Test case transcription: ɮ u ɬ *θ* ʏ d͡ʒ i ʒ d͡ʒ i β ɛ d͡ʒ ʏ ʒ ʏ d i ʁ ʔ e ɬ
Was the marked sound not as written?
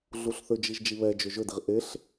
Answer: no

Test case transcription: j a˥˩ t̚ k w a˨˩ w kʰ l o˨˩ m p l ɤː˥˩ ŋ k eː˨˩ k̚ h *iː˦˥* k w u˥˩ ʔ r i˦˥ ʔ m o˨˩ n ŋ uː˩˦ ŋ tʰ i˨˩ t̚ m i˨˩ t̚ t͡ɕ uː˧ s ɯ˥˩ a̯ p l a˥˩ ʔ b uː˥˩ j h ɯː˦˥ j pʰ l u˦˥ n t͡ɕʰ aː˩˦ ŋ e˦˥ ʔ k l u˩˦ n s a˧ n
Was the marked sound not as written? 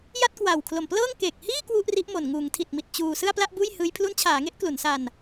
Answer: yes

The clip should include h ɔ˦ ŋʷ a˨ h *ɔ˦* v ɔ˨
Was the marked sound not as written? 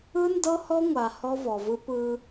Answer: no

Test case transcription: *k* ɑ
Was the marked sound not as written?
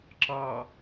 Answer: yes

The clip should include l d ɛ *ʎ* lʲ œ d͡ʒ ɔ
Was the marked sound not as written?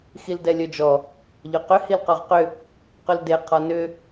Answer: yes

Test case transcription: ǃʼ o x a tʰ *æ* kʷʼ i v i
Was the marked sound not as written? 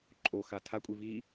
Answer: yes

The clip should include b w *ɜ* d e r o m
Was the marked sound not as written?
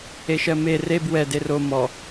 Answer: yes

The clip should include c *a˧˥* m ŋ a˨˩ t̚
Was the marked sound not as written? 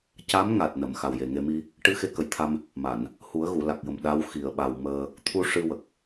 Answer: no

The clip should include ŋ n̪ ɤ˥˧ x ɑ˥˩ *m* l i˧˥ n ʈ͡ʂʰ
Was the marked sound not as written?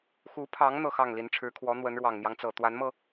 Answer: yes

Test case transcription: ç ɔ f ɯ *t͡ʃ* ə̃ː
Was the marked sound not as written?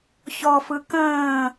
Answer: yes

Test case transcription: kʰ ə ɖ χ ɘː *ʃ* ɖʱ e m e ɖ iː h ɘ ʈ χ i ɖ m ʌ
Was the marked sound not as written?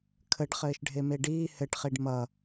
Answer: no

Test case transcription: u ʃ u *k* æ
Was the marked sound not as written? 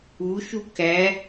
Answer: no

